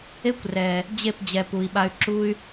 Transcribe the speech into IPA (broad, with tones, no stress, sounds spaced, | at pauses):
e˦ kʷ r ɛ˨ | d͡ʑ e˦˨ p d͡ʑ ɛ˨ p u˨ i̯ ɓ a˧ y̯ ǁ u˦ y̯